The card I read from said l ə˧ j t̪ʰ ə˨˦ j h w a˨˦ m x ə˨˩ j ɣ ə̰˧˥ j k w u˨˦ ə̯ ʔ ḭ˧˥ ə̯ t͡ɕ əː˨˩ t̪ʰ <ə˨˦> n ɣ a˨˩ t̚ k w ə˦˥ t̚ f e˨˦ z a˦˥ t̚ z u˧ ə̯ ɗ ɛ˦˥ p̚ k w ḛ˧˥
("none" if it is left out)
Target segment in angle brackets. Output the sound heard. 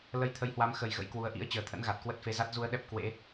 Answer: ə̰˧˥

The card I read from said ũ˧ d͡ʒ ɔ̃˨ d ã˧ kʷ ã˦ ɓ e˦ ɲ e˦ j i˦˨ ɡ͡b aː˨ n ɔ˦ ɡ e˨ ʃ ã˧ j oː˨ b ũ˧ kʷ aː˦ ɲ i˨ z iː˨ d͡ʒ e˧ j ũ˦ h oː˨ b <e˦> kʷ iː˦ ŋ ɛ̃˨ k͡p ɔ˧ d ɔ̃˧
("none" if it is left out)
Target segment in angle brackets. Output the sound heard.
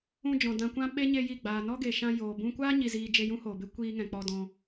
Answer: e˦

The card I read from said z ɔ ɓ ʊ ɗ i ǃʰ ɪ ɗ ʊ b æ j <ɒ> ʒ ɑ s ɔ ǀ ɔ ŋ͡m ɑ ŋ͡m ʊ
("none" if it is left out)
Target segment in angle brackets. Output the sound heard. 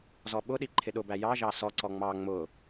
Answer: ɑ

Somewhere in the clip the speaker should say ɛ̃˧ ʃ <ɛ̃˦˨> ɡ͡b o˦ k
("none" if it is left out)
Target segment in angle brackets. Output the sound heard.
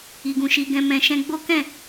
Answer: ɛ̃˧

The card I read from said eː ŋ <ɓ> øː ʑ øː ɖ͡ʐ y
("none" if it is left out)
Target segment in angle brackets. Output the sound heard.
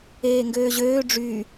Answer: ɡ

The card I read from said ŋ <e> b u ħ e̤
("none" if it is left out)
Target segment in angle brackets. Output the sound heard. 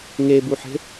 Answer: e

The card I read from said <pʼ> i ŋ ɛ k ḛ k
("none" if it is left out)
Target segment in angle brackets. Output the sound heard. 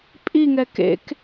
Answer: pʼ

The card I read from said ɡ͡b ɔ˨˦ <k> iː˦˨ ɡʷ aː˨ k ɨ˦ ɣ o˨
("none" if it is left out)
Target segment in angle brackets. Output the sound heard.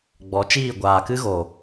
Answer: t͡ʃ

